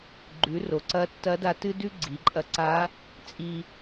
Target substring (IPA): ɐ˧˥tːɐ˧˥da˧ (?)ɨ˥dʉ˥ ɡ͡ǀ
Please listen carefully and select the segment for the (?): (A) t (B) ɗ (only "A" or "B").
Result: A